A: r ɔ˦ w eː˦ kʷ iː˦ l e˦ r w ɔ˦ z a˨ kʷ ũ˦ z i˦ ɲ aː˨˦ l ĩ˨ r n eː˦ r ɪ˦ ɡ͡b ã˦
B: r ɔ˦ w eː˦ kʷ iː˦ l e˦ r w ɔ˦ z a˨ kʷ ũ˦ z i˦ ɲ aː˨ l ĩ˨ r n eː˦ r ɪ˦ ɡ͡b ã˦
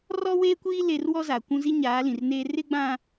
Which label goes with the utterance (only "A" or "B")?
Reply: A